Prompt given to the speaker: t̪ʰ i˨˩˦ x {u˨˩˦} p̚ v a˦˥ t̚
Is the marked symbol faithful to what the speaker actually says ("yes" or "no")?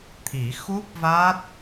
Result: no